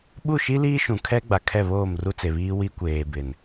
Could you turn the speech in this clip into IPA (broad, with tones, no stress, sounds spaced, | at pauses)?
ɓ u˦˨ ʃ i˦ l iː˦ ʃ ũ˨ kʰ ɛ˦ ɡ͡b a˨ kʰ ɛ˦˨ β oː˦˨ m r u˦ t͡s e˨ β iː˦ w i˦ kʷ eː˨ b ɪ˨ n